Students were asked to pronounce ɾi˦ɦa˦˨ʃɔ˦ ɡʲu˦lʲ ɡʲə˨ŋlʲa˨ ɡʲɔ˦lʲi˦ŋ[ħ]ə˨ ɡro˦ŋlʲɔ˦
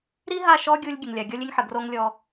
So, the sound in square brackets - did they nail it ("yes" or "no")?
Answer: yes